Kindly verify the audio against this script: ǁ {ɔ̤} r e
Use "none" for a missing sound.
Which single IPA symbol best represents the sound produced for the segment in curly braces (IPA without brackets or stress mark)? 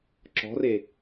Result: ɔ̤